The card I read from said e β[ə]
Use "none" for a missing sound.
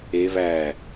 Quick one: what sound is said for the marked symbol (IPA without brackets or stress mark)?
æ